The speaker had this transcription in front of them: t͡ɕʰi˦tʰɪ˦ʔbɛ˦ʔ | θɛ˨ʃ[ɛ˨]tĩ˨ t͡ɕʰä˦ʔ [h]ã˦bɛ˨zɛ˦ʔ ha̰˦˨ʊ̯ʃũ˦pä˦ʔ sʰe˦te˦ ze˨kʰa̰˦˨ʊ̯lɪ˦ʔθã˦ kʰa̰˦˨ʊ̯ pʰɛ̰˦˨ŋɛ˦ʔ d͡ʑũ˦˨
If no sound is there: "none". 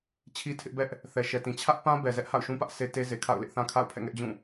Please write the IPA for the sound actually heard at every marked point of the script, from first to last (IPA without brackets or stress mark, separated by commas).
ɛ˨, p